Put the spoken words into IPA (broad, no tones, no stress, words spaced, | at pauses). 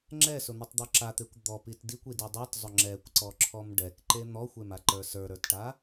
ŋ͡ǁɛsʊn̪ʊtˤd̪ɔ ǁat̪ekʷ d̪ɔpit dikʷidi dˤitzˤʊ ŋ͡ǁɛkʷǀɔǁʰɔm ɖɛkǃe n̪ɔxʷemaǃə˞ sə˞ɾə˞tʈa